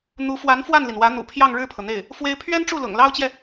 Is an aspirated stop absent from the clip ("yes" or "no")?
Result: no